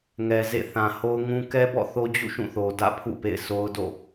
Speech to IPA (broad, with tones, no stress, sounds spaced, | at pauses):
ŋ ɛ˨ z ḛ˦˨ θ ã˨ h o˦ ʊ̯ ŋ ũ˦ k ɛ˦ b ɔ̰˦˨ θ o˦ d͡ʑ ṵ˦˨ ʃ ũ˦˨ θ o˨ d ä̰˦˨ pʰ ṵ˦˨ p ḛ˦˨ ɪ̯ sʰ o˦ ʊ̯ d o̰˦˨